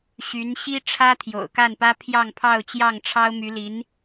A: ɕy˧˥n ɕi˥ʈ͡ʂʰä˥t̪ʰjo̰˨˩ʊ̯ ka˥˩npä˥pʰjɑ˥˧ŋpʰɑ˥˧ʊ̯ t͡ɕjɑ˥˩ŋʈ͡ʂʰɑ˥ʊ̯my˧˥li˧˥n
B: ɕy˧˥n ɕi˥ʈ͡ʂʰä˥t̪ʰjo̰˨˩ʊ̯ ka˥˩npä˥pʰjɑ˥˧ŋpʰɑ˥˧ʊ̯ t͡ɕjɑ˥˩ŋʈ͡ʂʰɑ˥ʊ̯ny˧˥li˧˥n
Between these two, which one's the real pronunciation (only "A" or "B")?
A